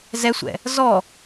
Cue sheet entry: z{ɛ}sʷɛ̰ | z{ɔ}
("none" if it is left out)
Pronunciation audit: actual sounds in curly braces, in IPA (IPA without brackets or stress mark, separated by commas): ɛ, ɔ